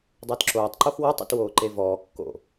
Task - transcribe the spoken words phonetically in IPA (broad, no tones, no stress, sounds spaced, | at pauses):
dˤ əː t ǁ oː tˤ ǃ o x w ɔ tˤ ə̰ t w oː ǃ e v ɔː kː o̰